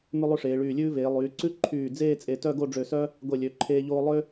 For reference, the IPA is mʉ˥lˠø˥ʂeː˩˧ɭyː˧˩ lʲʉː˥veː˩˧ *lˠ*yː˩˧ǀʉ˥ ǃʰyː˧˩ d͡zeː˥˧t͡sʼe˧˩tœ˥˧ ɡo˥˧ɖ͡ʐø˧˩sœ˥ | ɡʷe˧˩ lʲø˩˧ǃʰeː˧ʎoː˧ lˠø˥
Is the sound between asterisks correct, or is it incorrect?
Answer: correct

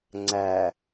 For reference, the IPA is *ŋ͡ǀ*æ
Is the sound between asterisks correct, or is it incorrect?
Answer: correct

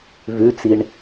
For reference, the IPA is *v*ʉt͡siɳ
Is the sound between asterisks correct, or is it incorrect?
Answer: correct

